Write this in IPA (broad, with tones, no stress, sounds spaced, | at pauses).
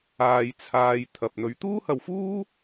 aː˧ j t͡sʰ aː˧ j t̪ʰ ɐ˧ p̚ n̪ ɵ˨˧ ɥ t̪ uː˥ h ɐ˧ w f uː˥